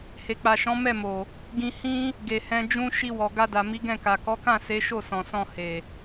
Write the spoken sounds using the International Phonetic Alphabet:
h e˨ k͡p a˨ ʃ ɔ̃˨˦ m ɛ˦˨ m o˨ | ɡ ĩ˧ h ĩ˦ | ɡ e˨ h ɛ̃˧ d͡ʒ ũ˧ ʃ i˧ w ɔ˨ ɡ a˧ d a˨ m i˨˦ ɡ ɛ̃˦˨ k a˨ k ɔ˨˦ k ã˦˨ s e˨˦ ʃ o˦˨ s ɔ̃˨ s ɔ̃˧ h e˨

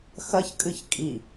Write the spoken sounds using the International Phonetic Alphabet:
x ɐ ç kʼ ɨ ç kʼ i

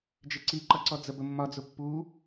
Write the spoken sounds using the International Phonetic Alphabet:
d͡ʒ ɪ ǀ i ǃ ʌ ǀ ɔ d͡z ə b ə mː ɒ d͡z ʊ pː u

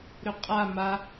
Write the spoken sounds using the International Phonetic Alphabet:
ɾ ʏ qʼ a m a

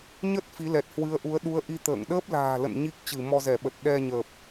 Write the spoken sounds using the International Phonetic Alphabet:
ɲ ə˦˥ t̚ f i˨˦ l ɛ˨˩ t̚ h w ɨ˨˦ ə̯ ʔ u˨˦ ə̯ ɗ u˨˦ ə̯ ʔ i˧ t̪ ə̰ː˧˨ ŋ ɗ əː˦˥ p̚ l a̤ː˨˩ l ə̰˧˨ n ɲ i˦˥ k̚ t͡ɕ ɨ˧˩ m ɔ˧ z ɛ˧˩ ɓ ə˨˩ t̚ ɗ ɛ˧ ɲ əː˨˩ p̚

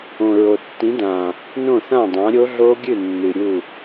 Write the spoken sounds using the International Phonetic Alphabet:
õ˨˩ ɹ o˨˩ tː ĩ˨˥ d ã˨˩ | n õ˥˩ θ ã˥˩ dˤ ã˨˥ ɾʲ o˦˥ ɮ o˦˥ ɡʲ ɨ˥˩ nː ɨ˨˩ ɾʲ u˥˩

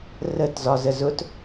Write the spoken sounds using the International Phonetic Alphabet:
r ə t z ɒ z ə z ʊ t

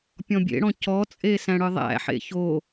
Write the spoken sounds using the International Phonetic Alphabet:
pʲ ɔ̃ bʲ ḛ ɽ ɔ̃ c ɔ t͡sʼ e s æ̃ ɽ ɯ ðˤ æ̰ ħ ḛ ç o

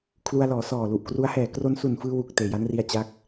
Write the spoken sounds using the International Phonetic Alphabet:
kʰ l u˧ a̯ l ɔː˩˦ s ɔː˨˩ l u˨˩ ʔ k r u˦˥ a̯ h ɛː˨˩ k r o˧ n s u˨˩ n f ɯː˧ w u˨˩ k̚ t eː˨˩ j a˦˥ n r i˧ a̯ t͡ɕ a˦˥ k̚

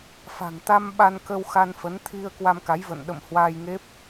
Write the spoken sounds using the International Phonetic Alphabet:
f a̤˨˩ ŋ t̪ a˧ m ɓ a˧ n k ə˧ w x a˧ n f ə˨˦ n t̪ʰ i˧ ə̯ k w a˧ m k a˨˦ j v ə̰˧˨ n ɗ ə̰˧˨ m h w a˧ j ŋ e˦˥ p̚

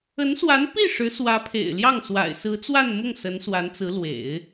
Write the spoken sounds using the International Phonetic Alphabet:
ə˧˥ n s w a˧˥ n p i˥˩ ʂ ɻ̩˧˥ s w ä˧˥ pʰ ḛ˨˩ ɪ̯ l j ɑ˥˩ ŋ s w a̰˨˩ ɪ̯ s ɹ̩˧˥ t͡s w a˥˧ n m ʊ˥˩ ŋ s ə˧˥ n s w a˧˥ n t͡s ɹ̩˧˥ l w ḛ˨˩˦ ɪ̯

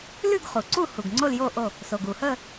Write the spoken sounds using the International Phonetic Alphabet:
l ʉ˥˨ ɡ χ u˩ ǀ u˥˨ h u˩ ɡ ŋ͡ǀ o˥˨ l j o˥˨ ʔ o˥˨ | s o˩ ɡ u˩ h ə˥˨

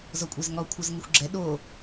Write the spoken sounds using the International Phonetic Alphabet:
z ɔ kʷʼ ɛ z ŋ ɔ kʷʰ ʌ z ŋ ɪ xʷ ɡ͡ǁ ɛ ɗ o

